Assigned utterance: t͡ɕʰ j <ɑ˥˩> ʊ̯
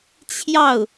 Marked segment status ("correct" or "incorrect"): correct